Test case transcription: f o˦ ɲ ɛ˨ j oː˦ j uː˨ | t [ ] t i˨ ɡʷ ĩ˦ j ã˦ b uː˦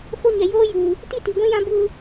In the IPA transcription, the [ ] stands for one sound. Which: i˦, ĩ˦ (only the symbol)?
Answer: i˦